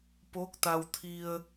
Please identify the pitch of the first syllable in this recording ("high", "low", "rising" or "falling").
rising